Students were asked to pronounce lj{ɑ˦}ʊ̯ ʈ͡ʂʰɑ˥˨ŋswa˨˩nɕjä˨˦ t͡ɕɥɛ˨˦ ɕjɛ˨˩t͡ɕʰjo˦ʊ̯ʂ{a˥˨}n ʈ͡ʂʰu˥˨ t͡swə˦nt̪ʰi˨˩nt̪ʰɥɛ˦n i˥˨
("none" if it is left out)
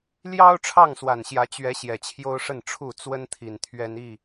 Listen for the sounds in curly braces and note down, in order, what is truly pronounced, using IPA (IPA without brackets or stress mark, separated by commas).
ɑ˦, ə˥˨